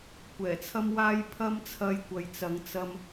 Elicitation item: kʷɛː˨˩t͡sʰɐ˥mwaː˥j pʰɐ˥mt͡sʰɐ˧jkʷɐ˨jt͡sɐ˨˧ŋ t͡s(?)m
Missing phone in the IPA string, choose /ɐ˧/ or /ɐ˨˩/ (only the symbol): ɐ˧